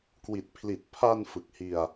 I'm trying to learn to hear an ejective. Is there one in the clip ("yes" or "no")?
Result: no